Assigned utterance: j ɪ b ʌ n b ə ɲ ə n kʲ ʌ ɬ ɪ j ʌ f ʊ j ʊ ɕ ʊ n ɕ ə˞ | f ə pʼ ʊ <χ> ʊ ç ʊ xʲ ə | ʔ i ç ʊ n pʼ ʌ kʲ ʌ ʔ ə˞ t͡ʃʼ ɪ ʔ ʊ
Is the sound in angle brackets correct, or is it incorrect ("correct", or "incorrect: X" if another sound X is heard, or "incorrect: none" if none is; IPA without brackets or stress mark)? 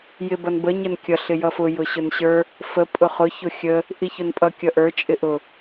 correct